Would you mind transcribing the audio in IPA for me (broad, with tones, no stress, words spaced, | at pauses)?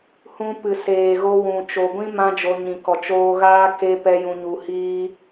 hũ˧ pɨ˨seː˨ɣo˧wũ˨ t͡ʃo˨ɡʷĩ˦ mã˦d͡ʒo˧ ɲĩ˨kɔ˨ t͡ʃoː˧ɣaː˦ ke˦pɛ˦ jũ˧ɲu˧hiː˦